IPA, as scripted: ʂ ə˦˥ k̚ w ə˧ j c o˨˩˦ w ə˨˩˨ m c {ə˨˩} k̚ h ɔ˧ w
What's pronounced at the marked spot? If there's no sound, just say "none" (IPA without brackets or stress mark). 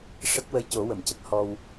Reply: ə˦˥